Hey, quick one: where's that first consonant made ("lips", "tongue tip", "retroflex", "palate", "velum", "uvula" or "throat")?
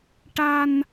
retroflex